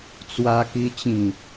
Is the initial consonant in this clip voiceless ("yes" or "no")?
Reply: yes